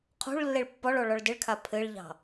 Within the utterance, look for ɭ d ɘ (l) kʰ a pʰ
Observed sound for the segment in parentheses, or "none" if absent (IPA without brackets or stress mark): ɭ